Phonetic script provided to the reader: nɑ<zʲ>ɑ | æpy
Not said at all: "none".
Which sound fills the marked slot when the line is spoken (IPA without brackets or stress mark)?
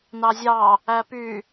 zʲ